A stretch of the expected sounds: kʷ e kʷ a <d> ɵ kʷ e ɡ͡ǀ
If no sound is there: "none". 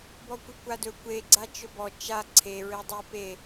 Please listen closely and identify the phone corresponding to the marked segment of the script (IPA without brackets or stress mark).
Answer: d